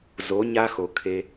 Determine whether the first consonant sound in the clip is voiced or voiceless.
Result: voiced